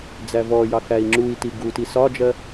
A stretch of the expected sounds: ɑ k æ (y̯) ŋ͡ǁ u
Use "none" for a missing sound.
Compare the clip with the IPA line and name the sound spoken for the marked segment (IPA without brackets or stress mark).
i̯